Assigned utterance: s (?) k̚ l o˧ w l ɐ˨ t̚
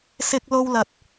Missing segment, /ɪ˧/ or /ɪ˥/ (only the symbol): ɪ˧